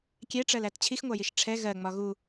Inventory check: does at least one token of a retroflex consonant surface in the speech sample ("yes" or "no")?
yes